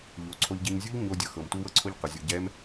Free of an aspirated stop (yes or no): no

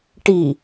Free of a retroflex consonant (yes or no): no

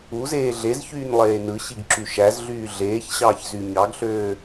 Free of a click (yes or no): no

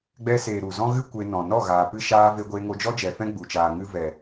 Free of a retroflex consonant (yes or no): yes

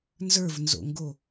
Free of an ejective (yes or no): yes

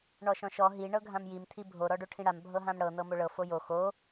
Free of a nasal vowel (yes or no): no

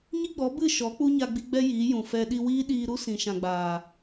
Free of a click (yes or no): yes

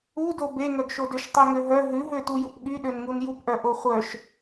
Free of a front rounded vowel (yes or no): no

